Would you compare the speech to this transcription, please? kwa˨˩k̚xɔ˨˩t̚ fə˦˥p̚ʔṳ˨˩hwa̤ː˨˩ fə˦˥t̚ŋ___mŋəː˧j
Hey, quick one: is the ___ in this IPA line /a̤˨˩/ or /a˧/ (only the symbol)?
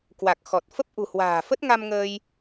a˧